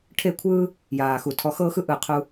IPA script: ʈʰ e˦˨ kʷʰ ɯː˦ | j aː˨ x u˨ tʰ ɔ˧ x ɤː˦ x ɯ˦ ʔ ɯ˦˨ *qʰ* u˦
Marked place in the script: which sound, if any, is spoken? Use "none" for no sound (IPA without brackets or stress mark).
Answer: qʰ